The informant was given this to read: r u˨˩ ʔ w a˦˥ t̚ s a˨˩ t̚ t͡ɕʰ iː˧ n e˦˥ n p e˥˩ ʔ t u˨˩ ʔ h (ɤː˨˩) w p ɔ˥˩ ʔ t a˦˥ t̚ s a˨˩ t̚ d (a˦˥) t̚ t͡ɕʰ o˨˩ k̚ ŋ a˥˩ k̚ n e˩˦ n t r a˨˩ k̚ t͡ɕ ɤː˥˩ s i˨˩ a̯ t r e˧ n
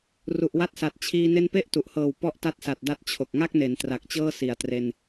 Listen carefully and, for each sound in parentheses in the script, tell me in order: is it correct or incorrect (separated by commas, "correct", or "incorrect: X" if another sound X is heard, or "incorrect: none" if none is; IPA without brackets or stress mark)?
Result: correct, correct